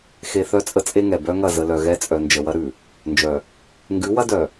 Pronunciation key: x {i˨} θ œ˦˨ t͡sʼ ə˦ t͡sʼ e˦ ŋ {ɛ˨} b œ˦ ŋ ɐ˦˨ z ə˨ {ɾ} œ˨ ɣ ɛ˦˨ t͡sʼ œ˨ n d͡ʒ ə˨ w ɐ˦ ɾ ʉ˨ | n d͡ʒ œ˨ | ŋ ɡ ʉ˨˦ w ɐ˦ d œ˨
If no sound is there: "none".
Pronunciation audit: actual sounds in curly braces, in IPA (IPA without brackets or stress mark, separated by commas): e˨, ɛ˨, l